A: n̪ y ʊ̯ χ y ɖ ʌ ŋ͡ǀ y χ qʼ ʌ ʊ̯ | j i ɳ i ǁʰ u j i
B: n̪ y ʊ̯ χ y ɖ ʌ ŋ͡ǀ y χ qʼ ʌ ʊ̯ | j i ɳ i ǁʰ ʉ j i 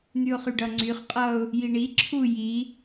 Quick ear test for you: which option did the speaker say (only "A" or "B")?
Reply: A